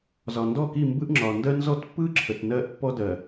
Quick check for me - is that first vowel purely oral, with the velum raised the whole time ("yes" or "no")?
yes